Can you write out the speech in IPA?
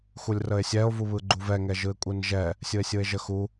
x u lʲ r ə e̯ sʲ ɛ o̯ v u β ɯ ɡ͡ǃ u v ɛ ŋ ɛ ʒ ɯ e̯ kʷʼ ɯ n ʒ ɛ | sʲ ɯ e̯ sʲ ɯ e̯ ʒ ə x u

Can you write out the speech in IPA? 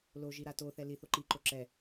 l o ʒ i ɾ a t o θ ɛ l i θ o ǃ i ǃ o ǁ ɛ

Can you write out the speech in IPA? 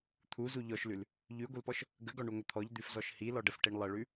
t̪ʰ u z u ʎ ɔ ʃ l ʉ l | ʎ ʉ ɡʷ ə l p ɔ ʃ | ɡ ə ɡ ɔ ɳ u ŋʷ ə t̪ʰ ɔ ʎ d̪ ʉ f z ɔ ʃ h i l ɔ ɖ ə f ʈ i ɳ lˠ ə ɭ ʉ

